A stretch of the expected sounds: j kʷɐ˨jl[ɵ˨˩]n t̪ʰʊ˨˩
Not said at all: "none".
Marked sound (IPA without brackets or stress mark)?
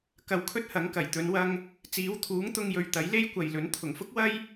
ɵ˨˥